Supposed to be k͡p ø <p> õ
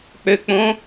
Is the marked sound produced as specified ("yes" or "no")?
no